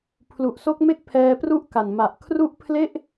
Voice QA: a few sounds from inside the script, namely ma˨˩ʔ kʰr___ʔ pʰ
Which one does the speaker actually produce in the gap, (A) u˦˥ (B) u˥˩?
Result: A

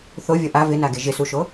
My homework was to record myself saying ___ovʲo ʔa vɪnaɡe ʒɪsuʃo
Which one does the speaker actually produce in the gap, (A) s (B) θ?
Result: B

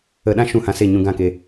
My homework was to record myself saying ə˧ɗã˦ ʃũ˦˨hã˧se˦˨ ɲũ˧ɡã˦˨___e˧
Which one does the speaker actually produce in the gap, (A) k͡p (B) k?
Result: B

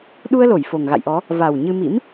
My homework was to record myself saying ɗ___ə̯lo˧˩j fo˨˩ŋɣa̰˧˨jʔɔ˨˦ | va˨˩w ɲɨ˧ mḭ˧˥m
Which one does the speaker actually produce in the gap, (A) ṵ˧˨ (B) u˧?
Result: B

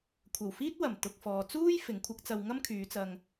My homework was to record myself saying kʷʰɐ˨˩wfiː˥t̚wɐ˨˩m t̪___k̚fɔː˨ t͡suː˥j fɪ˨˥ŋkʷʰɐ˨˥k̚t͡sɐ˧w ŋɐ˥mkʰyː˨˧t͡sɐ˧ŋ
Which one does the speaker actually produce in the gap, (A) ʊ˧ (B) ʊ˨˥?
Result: A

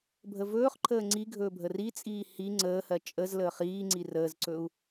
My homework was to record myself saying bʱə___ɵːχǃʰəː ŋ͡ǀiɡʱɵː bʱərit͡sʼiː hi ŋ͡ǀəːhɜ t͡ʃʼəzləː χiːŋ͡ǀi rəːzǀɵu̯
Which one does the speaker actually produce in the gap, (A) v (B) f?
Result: A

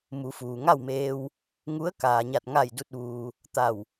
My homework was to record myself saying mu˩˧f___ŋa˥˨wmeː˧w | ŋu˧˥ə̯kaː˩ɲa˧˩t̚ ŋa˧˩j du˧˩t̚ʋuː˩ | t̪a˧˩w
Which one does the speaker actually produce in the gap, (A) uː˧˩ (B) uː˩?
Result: B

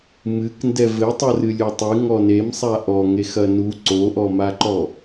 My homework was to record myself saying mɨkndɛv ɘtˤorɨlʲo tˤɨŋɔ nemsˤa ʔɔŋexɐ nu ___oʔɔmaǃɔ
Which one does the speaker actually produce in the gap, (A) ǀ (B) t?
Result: A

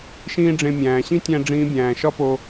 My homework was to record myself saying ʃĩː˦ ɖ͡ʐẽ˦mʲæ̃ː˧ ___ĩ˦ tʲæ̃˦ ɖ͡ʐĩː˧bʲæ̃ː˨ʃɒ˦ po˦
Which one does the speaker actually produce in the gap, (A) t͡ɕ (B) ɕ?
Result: B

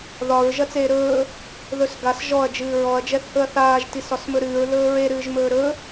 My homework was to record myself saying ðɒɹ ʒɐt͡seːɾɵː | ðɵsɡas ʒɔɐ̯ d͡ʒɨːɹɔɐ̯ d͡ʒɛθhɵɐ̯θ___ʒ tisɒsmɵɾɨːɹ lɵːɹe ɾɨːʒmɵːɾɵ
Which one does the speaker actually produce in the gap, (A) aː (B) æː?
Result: A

